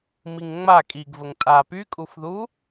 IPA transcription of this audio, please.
miŋŋ͡ma kʼiɡvəŋ tʼa pykʼufðu

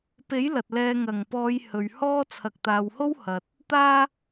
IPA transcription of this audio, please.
pe˨˥j lɐ˨t̚lɛː˧ ŋɐ˨˩ŋpɔː˨˧j hɵ˨ɥhɔː˥ t͡sʰɐ˨k̚t̪aː˨who˥w hɐ˨t̚ | t̪aː˥

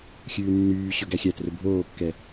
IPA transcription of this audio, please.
xʲʉːnːyːɕɵ ɡæxʲætrɵ bʱoːkːɛ

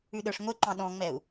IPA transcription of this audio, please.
ʉɗə˞ʂŋʷeǃɑ̃ ɗɔ̃ŋ͡mɛu̯

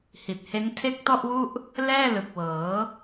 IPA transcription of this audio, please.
hi˨˩t̚he˦˥n tʰe˦˥k̚tɔ˥˩ʔwu˥˩ʔ | lɛː˥˩lɯ˨˩k̚wɤː˩˦

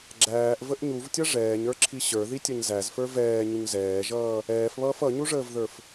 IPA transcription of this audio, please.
ɡ͡ǁæːʔvəʔ ɲuvtʲʌ ʐɛːɲə˞ǁʰi ɕə˞ðitʲʌɲ zæzfə˞ vɛːɲuɲ zɛːʒʌː | ɛːfβʌːf ʌɲuʐəːvðə˞f

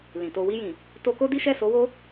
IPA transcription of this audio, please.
lĩ˨to˧ wi˧jĩ˨ | to˧ko˦di˦ ʃɛ˦˨so˧wo˦

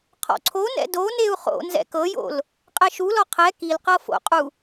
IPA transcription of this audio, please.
qʰɔ̰ǀʰonɛ̰ doneu̯ χo̰ nzɛ̰kɤjo̰l | qʼɛʃulɔ qʰɛ kilqɤ fo̰qʼu

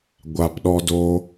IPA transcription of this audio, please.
ɡʷa˧pɗɔ˦do˦

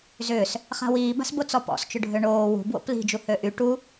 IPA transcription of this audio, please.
zʏːs | χa̤wiːba̤sbo t͡sɔpɔ̰st͡ʃʊɖʱø ɳoː wṳ bwo̰pli̤d͡ʒu høʔy ʈu

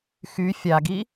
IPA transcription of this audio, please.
xy fʲaɡi

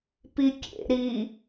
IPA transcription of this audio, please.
pikʲḛ ɾi

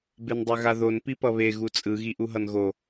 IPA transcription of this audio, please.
bendˤɛɣaðon pipʌβe ɣut͡sʼɯ ɣiʔuɦʌnɣo

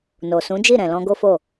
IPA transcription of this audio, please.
no˨sũ˨˦d͡ʒi˦˨ ɾɛ̃˨lɔ̃˧ɡo˦fo˦˨

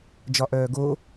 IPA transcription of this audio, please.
d͡ʒɒʔœːɡo

